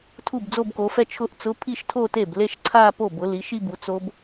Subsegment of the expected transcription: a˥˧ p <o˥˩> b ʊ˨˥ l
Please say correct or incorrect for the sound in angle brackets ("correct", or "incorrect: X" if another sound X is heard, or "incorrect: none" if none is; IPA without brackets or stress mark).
correct